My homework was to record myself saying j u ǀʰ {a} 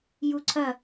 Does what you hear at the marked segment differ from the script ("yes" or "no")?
yes